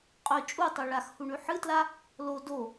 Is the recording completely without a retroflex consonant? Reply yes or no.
no